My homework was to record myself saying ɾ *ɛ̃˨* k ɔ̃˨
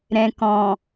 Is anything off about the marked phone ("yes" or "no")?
no